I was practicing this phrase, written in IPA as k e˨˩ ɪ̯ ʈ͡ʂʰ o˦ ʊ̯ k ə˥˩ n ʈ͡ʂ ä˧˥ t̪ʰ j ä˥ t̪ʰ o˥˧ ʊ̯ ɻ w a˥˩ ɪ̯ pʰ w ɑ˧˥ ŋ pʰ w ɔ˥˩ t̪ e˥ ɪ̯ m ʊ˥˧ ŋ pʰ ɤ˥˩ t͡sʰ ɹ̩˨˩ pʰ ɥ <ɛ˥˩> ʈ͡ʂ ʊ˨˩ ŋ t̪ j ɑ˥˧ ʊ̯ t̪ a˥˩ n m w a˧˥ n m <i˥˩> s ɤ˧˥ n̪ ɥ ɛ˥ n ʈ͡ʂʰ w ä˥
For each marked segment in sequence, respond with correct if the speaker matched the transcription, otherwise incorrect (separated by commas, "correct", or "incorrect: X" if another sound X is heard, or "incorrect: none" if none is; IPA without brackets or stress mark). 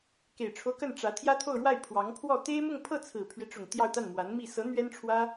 incorrect: ɛ˦, correct